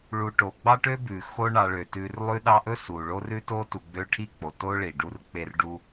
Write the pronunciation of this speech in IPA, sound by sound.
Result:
ɭ u˨ ʈ o˩ ɡ͡b ɑ˥ ʈ ø˥ b ʉ˩ x o˦ ɳ ɑ˨ ɭ ø˩ t ʉ˨ r lˠ ʉ˦ ɗ ɑ˦ ʔ ɵ˥ s u˩ ɭ o˦ r ʉ˥ t o˥ t u˨ ɡ͡b ø˦ ʈʰ i˥ k͡p o˩ t o˥ ɭ i˩ ɖ u˦ r k͡p e˦ r ɖ u˦

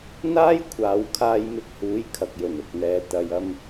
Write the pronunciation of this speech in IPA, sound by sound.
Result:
n̪ aː˥ j kʷʰ aː˨˧ w kʰ aː˧ j m ɪ˧ k̚ h uː˨˥ j kʰ ɐ˨ k̚ j ɵ˨˩ n ʊ˨ k̚ n̪ ɛː˨ t̪ ɐ˨ j ɐ˧ m

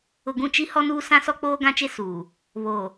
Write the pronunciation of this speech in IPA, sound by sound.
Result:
ʊ˨ ɡ ũ˦˨ t͡ʃ i˦ h ɔ˦ n uː˦ s ã˦ s ɔ˦ k͡p oː˦ ɡ ã˦ t͡ʃ e˦ s uː˨ | β oː˨

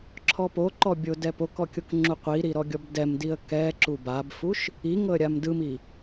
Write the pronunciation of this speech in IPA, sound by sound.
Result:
ǁʰ ɔ p o ǃ ɔ bʲ o d ɛ p o k ɔ kʲ o k ŋ͡ǁ u qʷ i ɾ i ɾ ɔ ɡʲ ɔ b d ɛ m d i ə̯ k ɛ ǁ u b a b f u ʃ | i ŋ ɤ ə̯ ɾʲ a m d ɯ m i

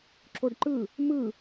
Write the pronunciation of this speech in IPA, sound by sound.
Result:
ǁ o ɖ ǃ ɯ | m ɯ

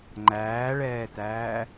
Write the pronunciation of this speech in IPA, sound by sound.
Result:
ŋ͡ǃ æː ɭ ɛː t̪ æː

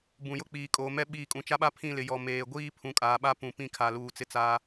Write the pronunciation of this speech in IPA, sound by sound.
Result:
b ũ˨ j ʊ˦ k͡p iː˨ kʼ oː˨ m ɛ˦ ɓ iː˨ kʼ ũ˨ t͡ʃ a˦ ɓ a˦ pʰ ĩ˦˨ l ɪ˨ j ɔ˨ m eː˨ ɡʷ iː˦ pʰ ũ˨ kʼ aː˨ ɓ a˦ p ũ˨ p ĩ˦ kʰ a˨ l uː˨ t͡s ɪ˦ t͡s a˦

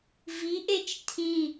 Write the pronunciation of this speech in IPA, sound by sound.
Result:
v i ʔ e t͡ʃ tʰ ĩ

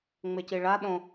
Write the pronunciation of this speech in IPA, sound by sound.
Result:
ŋ͡m e c i ɭ a ɗ õ

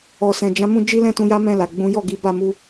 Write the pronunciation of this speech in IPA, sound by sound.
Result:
ɔ˨ s ɛ̃˨ d͡ʒ ã˨˦ m ũ˧ d͡ʒ i˦ l ɛ̃˦ t ũ˧ j a˦ m ɛ̃˦˨ l a˨ ɡ͡b ũ˨˦ j ɔ˦˨ ɡ i˨˦ b a˦˨ m u˧

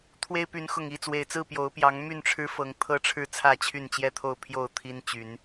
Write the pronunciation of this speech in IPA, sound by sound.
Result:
t̪ʰ w e˦ ɪ̯ p y˨˦ n x ʊ˨˩ ŋ i˥˨ t͡s w e˨˩ ɪ̯ t͡s ɹ̩˥˨ p j o˨˦ ʊ̯ p j ɑ˨˦ ŋ m y˥˨ n ʈ͡ʂʰ ɻ̩˦ f ɤ˨˦ ŋ t̪ʰ ɤ˦ ʈ͡ʂʰ ɻ̩˥˨ t͡sʰ ä˥˨ t͡ɕʰ y˥˨ n t͡ɕ j ɛ˥˨ t̪ʰ o˥˨ ʊ̯ pʰ j o˥˨ ʊ̯ t̪ʰ i˦ n t͡ɕ y˨˦ n

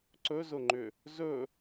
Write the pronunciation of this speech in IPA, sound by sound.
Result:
ǀ ɵ z ʊ ŋ͡ǃ ʏ | z ɵ

